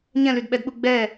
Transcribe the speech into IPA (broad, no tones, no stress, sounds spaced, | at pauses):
ɲ ɛ̃ l y d ɓ ɛ d ɓ u ɡ͡b ɛ